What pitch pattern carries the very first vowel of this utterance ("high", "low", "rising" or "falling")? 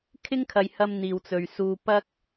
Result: high